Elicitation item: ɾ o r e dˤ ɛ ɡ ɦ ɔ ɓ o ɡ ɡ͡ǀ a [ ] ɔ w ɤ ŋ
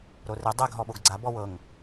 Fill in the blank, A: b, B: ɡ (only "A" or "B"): A